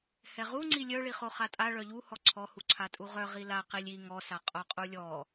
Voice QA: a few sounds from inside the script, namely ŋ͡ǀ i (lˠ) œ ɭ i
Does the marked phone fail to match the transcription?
yes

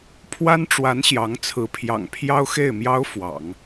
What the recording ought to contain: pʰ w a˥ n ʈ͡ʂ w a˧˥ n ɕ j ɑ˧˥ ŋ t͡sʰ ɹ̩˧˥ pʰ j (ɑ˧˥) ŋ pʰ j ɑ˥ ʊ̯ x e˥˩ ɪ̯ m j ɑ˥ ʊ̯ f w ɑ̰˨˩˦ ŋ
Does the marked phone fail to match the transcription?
yes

